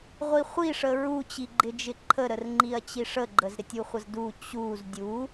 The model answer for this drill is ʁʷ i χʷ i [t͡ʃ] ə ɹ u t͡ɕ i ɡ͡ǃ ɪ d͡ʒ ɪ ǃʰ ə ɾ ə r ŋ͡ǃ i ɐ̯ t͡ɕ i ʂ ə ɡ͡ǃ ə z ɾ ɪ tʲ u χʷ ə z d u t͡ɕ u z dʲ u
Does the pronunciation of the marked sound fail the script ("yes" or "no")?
yes